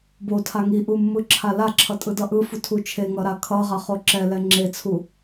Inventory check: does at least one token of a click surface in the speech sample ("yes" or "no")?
yes